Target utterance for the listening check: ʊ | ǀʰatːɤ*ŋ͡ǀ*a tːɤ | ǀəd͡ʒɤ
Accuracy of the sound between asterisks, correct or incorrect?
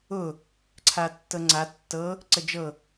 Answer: correct